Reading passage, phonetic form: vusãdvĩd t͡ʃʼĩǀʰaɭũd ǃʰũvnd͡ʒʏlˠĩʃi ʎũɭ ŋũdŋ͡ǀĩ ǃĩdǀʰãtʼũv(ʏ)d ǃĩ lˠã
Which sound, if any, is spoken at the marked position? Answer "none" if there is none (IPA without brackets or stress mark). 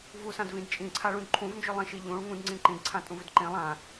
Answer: ʏ